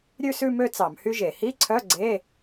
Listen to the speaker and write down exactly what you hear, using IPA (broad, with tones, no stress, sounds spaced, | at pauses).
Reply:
ɾʲ ʉ˥˧ s ʉ˥˧ m ø˥˧ t͡s ɑ˧˩˧ m h y˥ ʒ e˧˩˧ h i˧˥˧ ǀʰ œ˧˥˧ ɡ͡ǀ e˧˥˧